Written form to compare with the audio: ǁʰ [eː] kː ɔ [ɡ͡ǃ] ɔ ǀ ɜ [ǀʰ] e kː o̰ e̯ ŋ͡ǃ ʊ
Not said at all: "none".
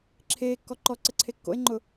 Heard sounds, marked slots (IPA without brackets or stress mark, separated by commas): eː, ǃ, ǀʰ